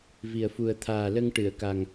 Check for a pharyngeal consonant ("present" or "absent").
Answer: absent